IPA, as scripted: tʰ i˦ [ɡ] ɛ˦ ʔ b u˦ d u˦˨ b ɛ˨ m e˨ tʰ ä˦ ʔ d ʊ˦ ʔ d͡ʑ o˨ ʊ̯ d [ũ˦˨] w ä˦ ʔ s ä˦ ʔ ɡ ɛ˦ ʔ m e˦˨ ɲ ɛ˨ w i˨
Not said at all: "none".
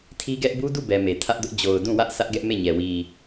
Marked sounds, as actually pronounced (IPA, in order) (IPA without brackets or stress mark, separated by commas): ɡ, ũ˦˨